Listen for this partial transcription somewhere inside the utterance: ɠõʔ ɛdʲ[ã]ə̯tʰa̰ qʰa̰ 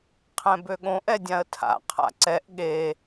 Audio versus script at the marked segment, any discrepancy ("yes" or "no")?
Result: no